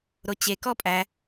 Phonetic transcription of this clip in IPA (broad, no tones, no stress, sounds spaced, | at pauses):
ɾ o t͡ɕ e k ɔ pʼ æ